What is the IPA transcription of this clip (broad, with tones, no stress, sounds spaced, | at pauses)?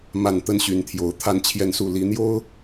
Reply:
m a˥˨ n t̪ ə˦ n ɕ y˨˦ n t̪ʰ j o˨˩ ʊ̯ t̪ʰ a˥˨ n t͡ɕʰ j ɛ˥˨ n s u˥˨ l i˨˦ n̪ j o˦ ʊ̯